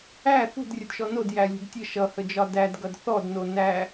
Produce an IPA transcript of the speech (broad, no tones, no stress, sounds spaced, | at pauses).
æ θ ṳ d rʲ ə d ʃ ɔ n o d j æ lʲ ṳ d tʲ ə ʃ ʌ h ə d͡ʒ ɒ d æ d ɡ ʌ d θ ɔ d n o n æ